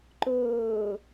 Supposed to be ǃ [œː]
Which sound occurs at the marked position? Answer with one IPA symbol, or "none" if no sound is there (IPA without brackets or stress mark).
ɵː